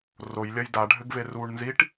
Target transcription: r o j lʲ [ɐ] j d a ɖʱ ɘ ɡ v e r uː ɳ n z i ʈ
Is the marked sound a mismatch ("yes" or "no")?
no